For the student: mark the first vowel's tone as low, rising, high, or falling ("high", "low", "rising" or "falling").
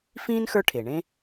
high